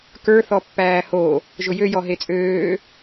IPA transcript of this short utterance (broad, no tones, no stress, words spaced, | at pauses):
kə˞ θɔpːæːho | ʒʊjø jɔɦet͡sʼøː